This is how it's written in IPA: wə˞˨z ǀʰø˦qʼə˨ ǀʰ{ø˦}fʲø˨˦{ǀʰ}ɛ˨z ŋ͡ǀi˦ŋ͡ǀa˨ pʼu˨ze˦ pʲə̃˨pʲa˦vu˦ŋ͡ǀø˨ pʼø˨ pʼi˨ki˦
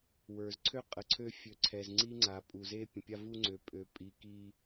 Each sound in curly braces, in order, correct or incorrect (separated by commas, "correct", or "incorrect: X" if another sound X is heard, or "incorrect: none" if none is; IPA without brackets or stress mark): correct, correct